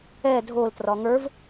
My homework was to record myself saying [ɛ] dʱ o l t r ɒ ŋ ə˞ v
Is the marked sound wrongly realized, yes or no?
no